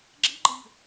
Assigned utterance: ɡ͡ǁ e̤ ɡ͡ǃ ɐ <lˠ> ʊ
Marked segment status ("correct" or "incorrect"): incorrect